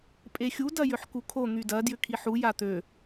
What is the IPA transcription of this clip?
pʼ e xʲ u d ɐ j ʏ ħ k u kʰ o n̪ y d ɐ d j ʏ kʰ i ħ u j a t̪ ø

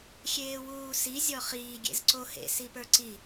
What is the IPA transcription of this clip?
xʲ eː w uː s i zʲ ɔ χ iː ɡʲ ḛ z ǀ o h ḛ s i p ə˞ ǀ i

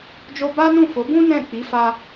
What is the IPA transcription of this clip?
d͡ʒ o˧ b a˦ n ũ˦˨ f o˨˦ b ũ˦ n ɛ̃˦˨ k͡p i˨˦ f a˧

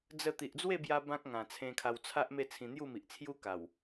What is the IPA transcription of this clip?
d͡z ə˥˧ t̪ i˨ ʔ d͡z w e˥˧ b j a˧ b ã˦ k̚ ŋ ã˨˩ t͡sʰ ẽ˧ kʰ a˧ w t͡sʰ a˦ ʔ m e˥˧ t͡sʰ ĩ˧ n̪ j u˥˧ m i˨ ʔ t͡sʰ j u˦ k a˨˩ w

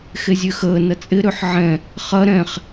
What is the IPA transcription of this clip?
x e zʲ ø x əː n ɐ t͡sʼ ɪ ɾ ø ħ ʕ ɛ̃ | χ ɐ ɾ ɛ̃ χ

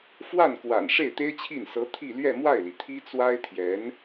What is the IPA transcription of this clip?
f w a˥˩ n k w a̰˨˩ n ʂ e˥˩ ɪ̯ t̪ e˥ ɪ̯ t͡ɕʰ i˥˩ n s ɤ˧˥ t̪ʰ i˥˧ l ɥ ɛ˥˧ m w a˥˩ ɪ̯ l i˩ t̪ʰ i˥ t͡s w a˥ ɪ̯ t̪ʰ j ɛ˧˥ n

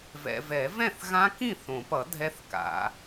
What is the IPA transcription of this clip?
v ɛ̰˨ v ɛ˨˩˦ v ɛ̃˥˩ θ ɣ ã˦˥ k ĩ˥˩ θ õ˨˩˦ p ʌ˨˩˦ dʱ ɛ˦˥ θ k a̰˨˩˦

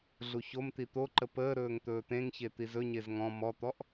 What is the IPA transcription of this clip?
ɮ u ç o m t̪ i t̪ o ǃ ə p əː ɾ ɵː ŋ t̪ ɵː t̪ ẽ ŋ ç e t̪ i z ɵ ɲ e z ŋ ɔ̃ m ɔ t̪ ɔ ʔ

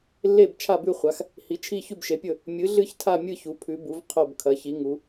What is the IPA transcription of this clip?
lː e˥˨ b t͡ʃʰ a˥˨ b ʉ˥˨ χʷ a˩˥ x | h i˩˥ t͡ʃʰ i˥˨ ç ʉ˥˨ b ʃ e˩˥ pʲ ɵ˥˨ | mʲ ɨ˩˥ ɮ ɨ˥˨ ç tʰ a˥˨ mʲ ɨ˥˨ ç u˩˥ pʰ ʉ˩˥ b u˩˥ v qʰ o˥˨ b kʰ ɐ˩˥ ç i˩˥ ŋ u˩˥

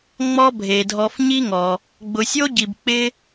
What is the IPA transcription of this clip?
ŋ͡m ɔ˦ bʱ e˩ dʱ ɔ˨ f ɲ i˦ ŋ ɔ˩ | ɡ͡b ʊ˨ sʲ o˥ ɟ i˨ b k͡p ɪ˦

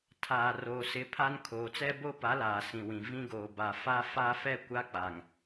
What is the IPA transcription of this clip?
tʰ aː˨ r o˨ s ɪ˦ pʰ a˦ n kʰ oː˨ t͡s ɛ˦ b o˦ p a˨˦ l aː˨ s ĩ˨ w ĩ˨ v ĩ˦ ɡ oː˨ b a˨ f a˦ f a˦ f ɛ˦ kʷ a˦ k͡p a˨ ŋ

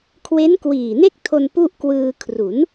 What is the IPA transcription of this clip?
kʰ w e˦˥ n k w iː˨˩ n e˥˩ k̚ tʰ o˧ n p u˥˩ ʔ k w ɯː˧ kʰ r u˩˦ n

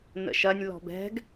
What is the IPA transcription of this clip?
n ə̰ ʃ ɐ nʲ l ɔ̤ b ɛ̤ ɡ

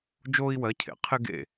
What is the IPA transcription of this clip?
d͡ʒ oː˥ i̯ w ɜ˧˥ cʰ ḛ˨˩˦ qʰ ɪ˥ ɡ ḛ˥˨

